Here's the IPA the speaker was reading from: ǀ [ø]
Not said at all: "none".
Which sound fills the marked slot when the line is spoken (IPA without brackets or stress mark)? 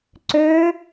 ø